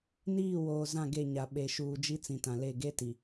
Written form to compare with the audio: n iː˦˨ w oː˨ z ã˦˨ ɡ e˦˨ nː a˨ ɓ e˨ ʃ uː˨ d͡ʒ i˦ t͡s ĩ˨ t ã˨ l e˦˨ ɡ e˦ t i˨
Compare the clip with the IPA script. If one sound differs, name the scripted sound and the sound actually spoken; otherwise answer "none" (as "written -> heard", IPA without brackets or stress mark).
nː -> ɲ